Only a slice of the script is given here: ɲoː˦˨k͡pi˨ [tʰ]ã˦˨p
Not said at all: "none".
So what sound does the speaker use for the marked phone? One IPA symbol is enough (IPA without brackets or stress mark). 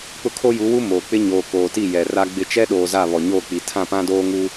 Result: tʰ